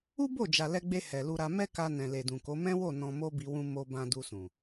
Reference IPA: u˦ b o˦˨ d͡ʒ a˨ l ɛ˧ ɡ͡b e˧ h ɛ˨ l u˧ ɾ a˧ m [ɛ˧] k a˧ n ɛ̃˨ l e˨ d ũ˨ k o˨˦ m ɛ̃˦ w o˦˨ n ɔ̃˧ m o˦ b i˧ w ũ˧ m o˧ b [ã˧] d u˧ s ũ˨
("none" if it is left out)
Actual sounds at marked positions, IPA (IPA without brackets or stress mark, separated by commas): ɛ˦, ã˧